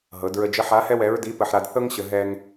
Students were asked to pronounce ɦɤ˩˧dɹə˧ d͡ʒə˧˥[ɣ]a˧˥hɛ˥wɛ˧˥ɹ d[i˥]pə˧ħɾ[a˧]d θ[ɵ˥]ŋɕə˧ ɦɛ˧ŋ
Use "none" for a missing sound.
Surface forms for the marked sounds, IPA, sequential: ħ, i˧˥, a˧, ɤ˥

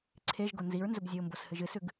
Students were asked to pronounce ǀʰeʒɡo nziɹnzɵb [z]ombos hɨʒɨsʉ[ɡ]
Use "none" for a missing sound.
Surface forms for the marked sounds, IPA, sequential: zʲ, ɡ

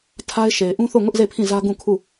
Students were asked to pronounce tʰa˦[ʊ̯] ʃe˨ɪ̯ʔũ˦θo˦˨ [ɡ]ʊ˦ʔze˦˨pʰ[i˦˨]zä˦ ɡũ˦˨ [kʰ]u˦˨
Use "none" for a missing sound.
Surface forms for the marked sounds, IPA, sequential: ɪ̯, ŋ, ĩ˦˨, kʰ

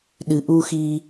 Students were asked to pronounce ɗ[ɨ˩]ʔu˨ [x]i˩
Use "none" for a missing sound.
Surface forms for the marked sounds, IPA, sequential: ɨ˩, x

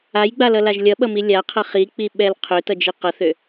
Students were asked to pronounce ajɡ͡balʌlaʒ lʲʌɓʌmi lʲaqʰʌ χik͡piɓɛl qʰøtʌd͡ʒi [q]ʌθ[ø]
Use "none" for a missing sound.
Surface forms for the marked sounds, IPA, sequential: q, ø

